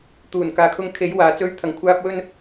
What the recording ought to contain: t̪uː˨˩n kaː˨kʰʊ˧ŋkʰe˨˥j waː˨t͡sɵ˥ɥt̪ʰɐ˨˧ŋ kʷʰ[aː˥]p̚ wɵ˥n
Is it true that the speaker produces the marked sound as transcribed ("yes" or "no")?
yes